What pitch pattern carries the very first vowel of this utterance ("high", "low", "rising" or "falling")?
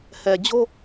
low